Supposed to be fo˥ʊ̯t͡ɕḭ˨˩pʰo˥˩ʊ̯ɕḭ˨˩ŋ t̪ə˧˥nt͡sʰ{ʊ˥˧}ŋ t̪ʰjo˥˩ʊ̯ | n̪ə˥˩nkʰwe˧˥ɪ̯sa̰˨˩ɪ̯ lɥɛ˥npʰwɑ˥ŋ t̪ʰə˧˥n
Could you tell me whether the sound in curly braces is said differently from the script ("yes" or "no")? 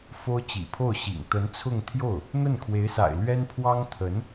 no